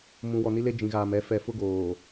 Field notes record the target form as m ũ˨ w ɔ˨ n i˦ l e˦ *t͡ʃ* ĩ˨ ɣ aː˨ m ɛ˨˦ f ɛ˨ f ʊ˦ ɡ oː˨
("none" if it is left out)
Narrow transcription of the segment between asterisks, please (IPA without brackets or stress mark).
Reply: d͡ʒ